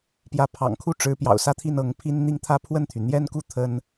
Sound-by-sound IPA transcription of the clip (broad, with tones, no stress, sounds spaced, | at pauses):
p j ä˧˥ pʰ ɑ̰˨˩ ŋ kʰ u˥˩ ʈ͡ʂ ɻ̩˧˥ p j ɑ̰˨˩ ʊ̯ s ä˥˧ t̪ʰ i˥˩ n ɤ˧˥ ŋ pʰ i˥ n n̪ i˥˧ ŋ t̪ʰ ä˥˧ pʰ w ə˥˩ n t̪ʰ y˩ n̪ j ɛ˥ n k u˥˩ t̪ʰ ə˥ n